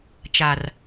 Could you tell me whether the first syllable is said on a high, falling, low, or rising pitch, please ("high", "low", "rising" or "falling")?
low